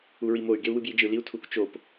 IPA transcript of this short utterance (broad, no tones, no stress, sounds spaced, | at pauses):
u ɹ i m o y̯ ɡ e u̯ w ɯ b j i d͡ʒ ɯ l i u̯ tʰ u k t͡ʃ o p